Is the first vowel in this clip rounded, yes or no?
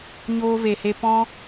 yes